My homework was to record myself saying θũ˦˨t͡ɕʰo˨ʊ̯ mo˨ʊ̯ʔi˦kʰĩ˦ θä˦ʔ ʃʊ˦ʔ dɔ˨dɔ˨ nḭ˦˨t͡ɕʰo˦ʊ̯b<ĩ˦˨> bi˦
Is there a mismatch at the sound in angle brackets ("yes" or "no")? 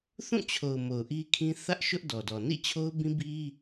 yes